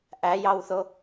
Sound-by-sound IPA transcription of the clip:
ʔ æ j ɑ w θ o

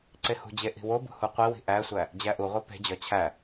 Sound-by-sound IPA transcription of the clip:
ǀ e h ṳ d͡ʑ e ʔ i̤ w o b ṳ h u qʷ i w i̤ ʔ æ sʷ æ | d͡ʑ æ ʔ u ʁʷ æ p e̤ d͡ʑ ɒ t͡ɕʰ æ

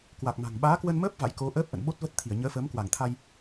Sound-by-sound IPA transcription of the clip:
k w a˨˩ k̚ m a̤˨˩ ŋ ɓ aː˨˦ k w ə˧ n m əː˦˥ p̚ v a̰˧˨ j k o˨˦ ʔ əː˦˥ p̚ ʔ ə̰˧˨ n ɓ o˦˥ t̚ v ə˦˥ t̚ t̪ʰ i˧˩ ə̯ ɲ əː˨˦ f əː˨˦ m k w a˧˩ ŋ t̪ʰ a˧ j

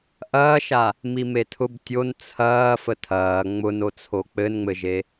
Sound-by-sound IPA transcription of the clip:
ʔ ɐː ʃ a | m i m e tʰ ʊ b tʲ o n t͡sʰ ɐː f ə tʰ ɐː ŋ͡m ʊ n o t͡sʰ o k͡p ɘ n ŋ͡m ɘ ʒ e

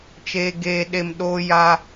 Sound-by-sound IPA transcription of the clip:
t͡ʃ eː˨ ɡ eː˨ ɗ e˨ m ɗ o˦ j a˦

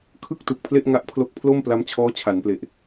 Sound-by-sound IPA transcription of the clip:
kʰ ɯ˥˩ k̚ t u˨˩ k̚ pʰ l e˥˩ ʔ ŋ a˦˥ ʔ pʰ l o˦˥ k̚ pʰ l o˥˩ m p l a˦˥ m t͡ɕʰ ɔː˦˥ t͡ɕʰ a˩˦ n p l e˨˩ ʔ

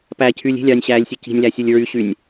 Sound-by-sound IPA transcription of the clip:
p æ cʰ yː lʲ i̤ lʲ ɑː nʲ ɕ æː lʲ sʲ ɯ c i̤ nʲ l æ sʲ u lʲ ɹ y ɕ y nʲ

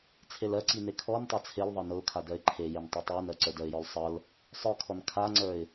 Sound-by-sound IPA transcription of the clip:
t͡sʰ e l ɜ ǀ i n e kʰ ɔ n tˤ a t͡sʰ e l ðˤ ɤ n ɤ ʊ̯ kʰ a d ɜ ɪ̯ ǃʰ e j e n tˤ e tˤ ə˞ n ɜ ǀ ə˞ d ɜ ɪ̯ j ɔ l sˤ ɤ l | sˤ ə˞ kʰ ɔ n kʰ a ŋ͡ǀ ə˞ ɪ̯

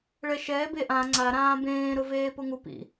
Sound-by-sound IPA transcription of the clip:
ɭ ɛ ʃ ɛː b e ʔ ã ŋ͡ǀ a ɾ ãː b ẽː ɾ ʊ v eː p ʊ ŋ u p ḭ

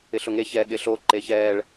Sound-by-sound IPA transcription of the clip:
ɪ ɬ ʊ ŋ e ç ɛ ɠ ɪ ɬ o ǃ e ç ɛ ɭ

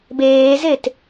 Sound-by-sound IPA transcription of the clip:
b eː z e t

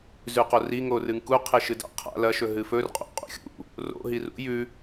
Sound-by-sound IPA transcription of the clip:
z ʉ q o r i ŋ o r ɨ ŋ k u qʰ e ʃ ɨ d a̰ qʰ a̰ l ɐ ʃ ɵ ɦ ɨ f ɵ r qʼ o̰ qʼ ṵ xʲ ṵ | r o̰ ɦ i r ṵ j ʉ

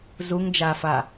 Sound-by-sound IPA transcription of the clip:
z u ŋ d͡ʒ aː f a

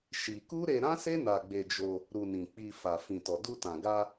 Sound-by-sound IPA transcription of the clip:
ʃ i˧ k u˦ ɾ e˧ ɾ ã˦ s e˦ n a˧ ɡ͡b e˧ d͡ʒ o˧ | ɾ u˧ n ĩ˨ k͡p i˧ f a˨ f ĩ˨ t ɔ˨ d u˧ t ã˨ ɡ a˧

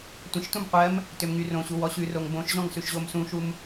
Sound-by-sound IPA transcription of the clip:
tʷ ə̃ ʃ t ũ m qʷ ɜ m | t ø m ŋ y r õ ɕ u w ɔ ɕ ʉ r o ŋ b õ ʃ ʑ ɔ̃ ŋ s ʉ ʃ ʑ o m s ũ ʃ u m

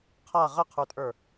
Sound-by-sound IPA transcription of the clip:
qʰ a ʁ ə qʰ ə˞ tʼ ə˞

